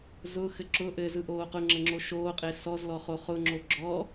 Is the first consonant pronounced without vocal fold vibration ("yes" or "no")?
no